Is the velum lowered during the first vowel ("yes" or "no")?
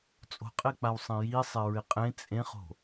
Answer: no